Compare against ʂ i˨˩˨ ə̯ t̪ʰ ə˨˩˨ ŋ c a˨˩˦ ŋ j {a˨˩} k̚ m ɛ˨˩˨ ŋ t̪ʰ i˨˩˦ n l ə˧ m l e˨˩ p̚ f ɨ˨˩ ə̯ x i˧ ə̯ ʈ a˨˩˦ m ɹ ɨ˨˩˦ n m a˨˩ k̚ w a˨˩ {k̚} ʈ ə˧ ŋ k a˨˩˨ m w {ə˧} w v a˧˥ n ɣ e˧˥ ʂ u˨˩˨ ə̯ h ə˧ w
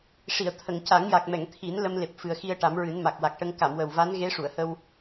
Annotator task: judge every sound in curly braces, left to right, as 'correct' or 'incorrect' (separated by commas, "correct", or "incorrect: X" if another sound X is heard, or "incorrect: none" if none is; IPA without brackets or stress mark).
correct, correct, incorrect: ə˨˩